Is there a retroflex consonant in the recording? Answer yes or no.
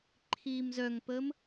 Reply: no